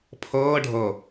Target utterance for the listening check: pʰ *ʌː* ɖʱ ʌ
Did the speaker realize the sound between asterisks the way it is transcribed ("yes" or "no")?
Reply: yes